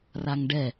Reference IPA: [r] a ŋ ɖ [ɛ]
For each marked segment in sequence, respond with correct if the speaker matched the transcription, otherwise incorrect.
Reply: correct, correct

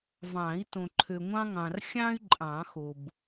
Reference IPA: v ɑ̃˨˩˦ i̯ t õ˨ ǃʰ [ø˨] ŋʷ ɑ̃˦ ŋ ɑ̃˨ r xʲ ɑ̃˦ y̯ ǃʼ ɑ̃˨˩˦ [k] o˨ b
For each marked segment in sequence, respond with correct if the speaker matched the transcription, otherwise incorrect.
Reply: correct, incorrect

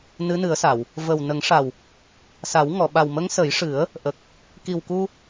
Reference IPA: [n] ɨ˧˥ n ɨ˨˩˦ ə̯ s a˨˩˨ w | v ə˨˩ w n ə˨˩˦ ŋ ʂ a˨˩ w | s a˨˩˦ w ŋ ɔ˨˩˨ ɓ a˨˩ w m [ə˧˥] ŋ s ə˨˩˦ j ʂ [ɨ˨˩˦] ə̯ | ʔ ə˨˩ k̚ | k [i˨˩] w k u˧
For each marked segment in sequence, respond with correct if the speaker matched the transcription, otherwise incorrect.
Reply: correct, correct, correct, correct

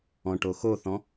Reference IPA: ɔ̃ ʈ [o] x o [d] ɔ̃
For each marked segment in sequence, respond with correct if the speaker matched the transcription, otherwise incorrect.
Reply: correct, incorrect

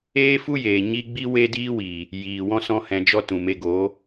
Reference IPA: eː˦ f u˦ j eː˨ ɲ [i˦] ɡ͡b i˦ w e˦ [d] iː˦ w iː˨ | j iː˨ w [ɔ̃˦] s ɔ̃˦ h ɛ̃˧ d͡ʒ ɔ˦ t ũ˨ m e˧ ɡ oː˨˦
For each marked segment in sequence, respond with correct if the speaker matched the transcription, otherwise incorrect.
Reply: correct, correct, correct

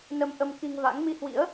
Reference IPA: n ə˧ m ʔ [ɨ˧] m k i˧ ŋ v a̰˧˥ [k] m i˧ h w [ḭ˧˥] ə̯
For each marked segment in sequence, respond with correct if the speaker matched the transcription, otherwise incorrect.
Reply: incorrect, incorrect, correct

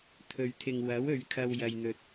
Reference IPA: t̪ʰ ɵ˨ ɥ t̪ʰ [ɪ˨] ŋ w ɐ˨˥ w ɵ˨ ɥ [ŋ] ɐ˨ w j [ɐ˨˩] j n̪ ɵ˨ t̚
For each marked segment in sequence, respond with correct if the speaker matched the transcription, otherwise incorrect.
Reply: correct, incorrect, incorrect

